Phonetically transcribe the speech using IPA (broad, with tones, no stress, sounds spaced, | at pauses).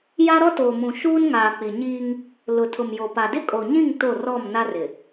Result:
j a˦ ɾ ɔ˦ t oː˨ m ũ˨ ʃ uː˦ n ŋ aː˨ k͡p i˨ ɲ iː˦ ŋ | l ʊ˨ tʰ ʊ˨ m j o˨ p a˨ d ɪ˦ kʼ o˨ ɲ ĩ˦˨ ŋ t o˦˨ r ɔ˦˨ m n a˦ r ɪ˨